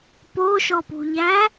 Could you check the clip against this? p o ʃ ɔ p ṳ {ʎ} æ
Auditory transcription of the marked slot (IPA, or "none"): ʎ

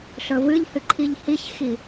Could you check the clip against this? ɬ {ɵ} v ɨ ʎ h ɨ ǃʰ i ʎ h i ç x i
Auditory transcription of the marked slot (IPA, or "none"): ɵ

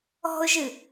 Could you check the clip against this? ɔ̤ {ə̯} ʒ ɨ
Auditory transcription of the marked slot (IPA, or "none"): ʊ̯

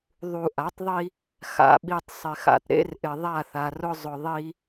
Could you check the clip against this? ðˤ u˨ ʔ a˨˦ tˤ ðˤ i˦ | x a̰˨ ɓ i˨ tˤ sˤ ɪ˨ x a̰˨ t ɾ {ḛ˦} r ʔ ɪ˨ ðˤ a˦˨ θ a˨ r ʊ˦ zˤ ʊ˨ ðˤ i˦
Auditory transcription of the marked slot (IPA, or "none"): ḛ˦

